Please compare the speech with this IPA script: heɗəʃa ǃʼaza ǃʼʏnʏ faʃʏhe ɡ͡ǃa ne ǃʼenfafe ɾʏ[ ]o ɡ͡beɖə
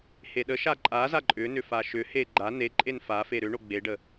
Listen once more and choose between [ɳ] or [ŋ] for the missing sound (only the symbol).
ɳ